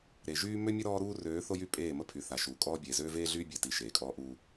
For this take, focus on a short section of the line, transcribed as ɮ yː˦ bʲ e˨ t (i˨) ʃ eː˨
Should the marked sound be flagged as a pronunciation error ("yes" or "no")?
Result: no